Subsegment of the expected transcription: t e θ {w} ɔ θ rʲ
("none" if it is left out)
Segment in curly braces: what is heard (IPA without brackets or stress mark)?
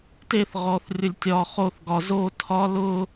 ʁ